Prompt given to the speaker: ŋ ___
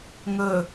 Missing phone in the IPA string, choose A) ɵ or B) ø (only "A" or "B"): A